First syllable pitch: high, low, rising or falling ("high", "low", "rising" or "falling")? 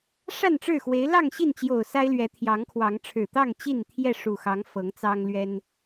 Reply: falling